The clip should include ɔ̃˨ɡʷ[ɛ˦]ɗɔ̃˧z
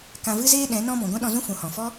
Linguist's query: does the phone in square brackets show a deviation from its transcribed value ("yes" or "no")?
yes